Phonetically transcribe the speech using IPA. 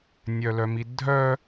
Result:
nʲ œ l œ m i dʱ œ

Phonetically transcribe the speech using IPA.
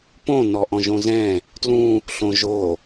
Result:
p õ n ɔ ʔ ɔ̃ ʒ õ z ɛ̃ | t l ũ | ɬ õ ʒ o

